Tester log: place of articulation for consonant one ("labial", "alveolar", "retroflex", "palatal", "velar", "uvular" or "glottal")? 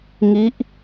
velar